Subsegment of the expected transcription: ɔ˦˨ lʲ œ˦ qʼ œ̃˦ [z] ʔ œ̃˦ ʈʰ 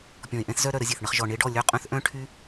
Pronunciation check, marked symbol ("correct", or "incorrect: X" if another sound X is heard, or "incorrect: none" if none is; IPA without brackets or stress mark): incorrect: θ